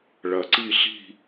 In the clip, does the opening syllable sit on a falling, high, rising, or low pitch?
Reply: low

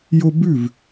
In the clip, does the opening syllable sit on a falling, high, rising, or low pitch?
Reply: high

